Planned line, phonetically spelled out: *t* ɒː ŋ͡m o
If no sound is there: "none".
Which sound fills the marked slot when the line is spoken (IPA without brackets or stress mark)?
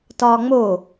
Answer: t